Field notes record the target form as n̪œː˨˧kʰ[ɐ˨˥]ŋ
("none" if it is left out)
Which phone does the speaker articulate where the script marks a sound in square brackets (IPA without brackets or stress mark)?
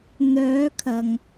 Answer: ɐ˨